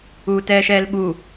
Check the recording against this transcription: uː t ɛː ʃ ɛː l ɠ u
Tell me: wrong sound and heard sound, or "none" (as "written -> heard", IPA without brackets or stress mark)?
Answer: none